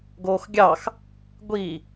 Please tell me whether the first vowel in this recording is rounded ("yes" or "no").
yes